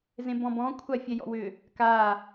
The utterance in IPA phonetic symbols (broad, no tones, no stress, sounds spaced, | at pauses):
z ẽ b ɔ̃ b ɔ̃ kʷʰ a fʲ ɛ j ɔ̰ w ʏ | k a